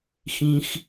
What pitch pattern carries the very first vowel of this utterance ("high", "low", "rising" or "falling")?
low